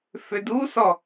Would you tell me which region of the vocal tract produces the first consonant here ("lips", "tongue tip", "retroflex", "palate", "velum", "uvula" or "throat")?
lips